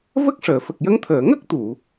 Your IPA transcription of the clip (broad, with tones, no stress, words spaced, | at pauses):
və˦˥k̚ʂəː˨˩˨fə˨˩k̚ jə˧˥ŋt̪ʰəː˨˩˨ ŋə˦˥k̚t̪u˨˩˨